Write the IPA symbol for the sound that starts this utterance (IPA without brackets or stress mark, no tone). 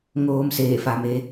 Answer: ŋ